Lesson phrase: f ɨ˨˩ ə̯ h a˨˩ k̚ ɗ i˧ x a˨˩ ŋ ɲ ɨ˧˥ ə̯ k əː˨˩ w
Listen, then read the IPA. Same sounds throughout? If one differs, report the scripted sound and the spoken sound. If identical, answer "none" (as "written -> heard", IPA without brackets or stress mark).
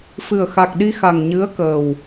h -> x